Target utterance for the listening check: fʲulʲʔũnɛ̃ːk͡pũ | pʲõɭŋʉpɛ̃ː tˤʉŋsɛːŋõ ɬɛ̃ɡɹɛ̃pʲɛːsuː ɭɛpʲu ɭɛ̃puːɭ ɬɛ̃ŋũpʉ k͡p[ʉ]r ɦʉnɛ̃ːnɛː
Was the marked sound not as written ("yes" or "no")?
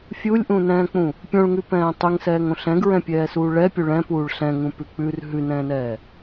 no